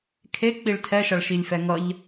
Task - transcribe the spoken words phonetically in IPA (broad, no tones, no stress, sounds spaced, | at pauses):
kʰ e k͡p i ɭ tʰ ɛ ʃ ʌ ɭ ʃ i lʲ f ɛ ŋ ʌ ʎ